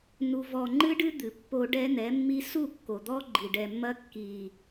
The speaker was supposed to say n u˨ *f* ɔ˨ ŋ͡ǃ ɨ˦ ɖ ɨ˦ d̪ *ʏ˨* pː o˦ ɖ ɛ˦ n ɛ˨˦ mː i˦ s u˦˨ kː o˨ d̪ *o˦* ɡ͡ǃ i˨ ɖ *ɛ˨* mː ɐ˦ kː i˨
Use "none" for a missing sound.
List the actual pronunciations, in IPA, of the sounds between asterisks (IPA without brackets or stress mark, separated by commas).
v, ɨ˨, ɔ˦, ɛ˨